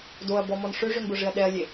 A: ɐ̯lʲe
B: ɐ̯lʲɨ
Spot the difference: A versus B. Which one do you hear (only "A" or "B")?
A